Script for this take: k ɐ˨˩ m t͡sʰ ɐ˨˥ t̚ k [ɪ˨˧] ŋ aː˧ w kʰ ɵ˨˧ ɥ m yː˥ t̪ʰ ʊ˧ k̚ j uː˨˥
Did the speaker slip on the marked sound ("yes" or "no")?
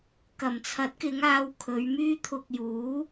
no